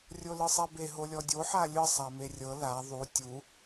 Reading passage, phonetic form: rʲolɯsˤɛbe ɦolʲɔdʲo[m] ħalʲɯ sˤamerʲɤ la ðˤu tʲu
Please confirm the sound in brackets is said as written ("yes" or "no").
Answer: no